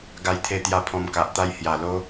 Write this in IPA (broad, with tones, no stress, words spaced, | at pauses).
ɡa˧jt̪ʰe˧t̪ja˧ pʰɔ̃˧mka˨ʔt̪a˥˧j hja˨˩lo˦